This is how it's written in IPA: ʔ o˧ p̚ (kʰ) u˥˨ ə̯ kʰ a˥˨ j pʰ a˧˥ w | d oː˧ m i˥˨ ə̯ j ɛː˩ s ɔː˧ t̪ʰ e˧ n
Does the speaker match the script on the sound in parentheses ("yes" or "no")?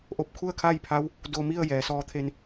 yes